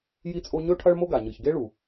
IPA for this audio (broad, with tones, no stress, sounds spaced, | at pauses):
j i˥ t͡sʼ o˥ ɲ ɵ˥ ʈʰ ɐ˥ ɭ m o˥ ɡ a˩ ɲ ɨ˩ ç ɡ e˥ ɭ u˩